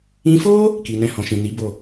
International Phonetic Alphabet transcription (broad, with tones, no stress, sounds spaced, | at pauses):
ĩ˧ f o˦ | k i˨ n ɛ̃˧ h ɔ̃˨ ʃ ĩ˨ n i˨˦ b o˦˨